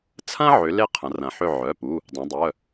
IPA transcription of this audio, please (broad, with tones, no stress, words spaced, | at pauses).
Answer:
t͡sʰɐ̃˥ ʕʏ˨˥ le˥qʰɐ̃˩˧rɐ̃˩˧ħʏ˦˨ ʕœ˩˧˩pu˩˧˩ | dˤœ̃˩˧dˤœ˩˧˩